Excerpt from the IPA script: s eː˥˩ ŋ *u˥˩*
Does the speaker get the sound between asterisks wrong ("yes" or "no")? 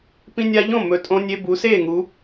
yes